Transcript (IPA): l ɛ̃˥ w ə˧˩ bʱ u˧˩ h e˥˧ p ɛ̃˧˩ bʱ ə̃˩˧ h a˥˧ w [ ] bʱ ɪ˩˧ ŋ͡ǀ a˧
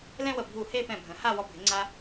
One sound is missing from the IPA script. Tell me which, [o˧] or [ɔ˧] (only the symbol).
ɔ˧